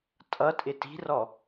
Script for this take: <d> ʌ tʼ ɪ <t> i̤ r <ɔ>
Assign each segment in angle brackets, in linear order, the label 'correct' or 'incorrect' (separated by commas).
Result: incorrect, correct, correct